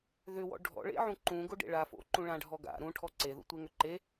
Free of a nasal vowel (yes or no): no